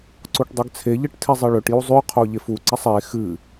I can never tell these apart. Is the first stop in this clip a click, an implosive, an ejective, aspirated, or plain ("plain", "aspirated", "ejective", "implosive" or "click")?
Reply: click